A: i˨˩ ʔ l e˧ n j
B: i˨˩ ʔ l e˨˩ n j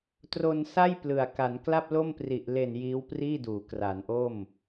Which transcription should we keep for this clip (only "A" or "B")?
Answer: B